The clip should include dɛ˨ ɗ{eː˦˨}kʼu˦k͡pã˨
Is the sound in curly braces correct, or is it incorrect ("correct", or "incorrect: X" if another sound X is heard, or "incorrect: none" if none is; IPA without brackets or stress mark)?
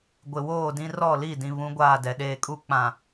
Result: incorrect: eː˨